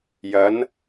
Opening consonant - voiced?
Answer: yes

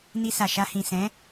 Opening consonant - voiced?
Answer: yes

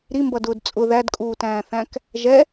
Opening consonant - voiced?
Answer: yes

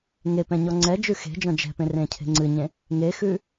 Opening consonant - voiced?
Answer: yes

